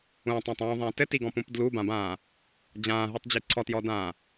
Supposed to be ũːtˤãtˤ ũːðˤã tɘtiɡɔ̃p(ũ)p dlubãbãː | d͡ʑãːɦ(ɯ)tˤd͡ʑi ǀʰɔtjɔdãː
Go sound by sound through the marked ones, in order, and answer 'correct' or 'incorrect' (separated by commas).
correct, correct